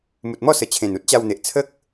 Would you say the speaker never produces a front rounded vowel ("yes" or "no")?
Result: yes